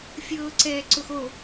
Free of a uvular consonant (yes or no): yes